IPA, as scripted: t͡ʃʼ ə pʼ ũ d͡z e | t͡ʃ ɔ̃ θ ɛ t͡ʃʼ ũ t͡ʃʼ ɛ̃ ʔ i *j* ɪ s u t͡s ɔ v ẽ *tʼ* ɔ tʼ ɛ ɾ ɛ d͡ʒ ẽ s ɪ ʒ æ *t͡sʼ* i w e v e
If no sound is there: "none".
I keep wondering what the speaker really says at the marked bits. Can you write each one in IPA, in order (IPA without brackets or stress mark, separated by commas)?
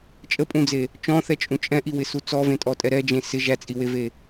w, tʼ, t͡sʼ